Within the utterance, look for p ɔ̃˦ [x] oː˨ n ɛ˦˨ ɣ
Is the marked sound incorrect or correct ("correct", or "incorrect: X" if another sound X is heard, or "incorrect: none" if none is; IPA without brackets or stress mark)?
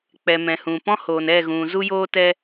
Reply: incorrect: h